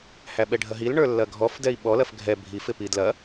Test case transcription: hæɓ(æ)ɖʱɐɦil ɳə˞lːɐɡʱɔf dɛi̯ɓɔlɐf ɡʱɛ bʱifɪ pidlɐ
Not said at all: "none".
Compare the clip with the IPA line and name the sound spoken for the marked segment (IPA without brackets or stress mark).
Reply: ɛ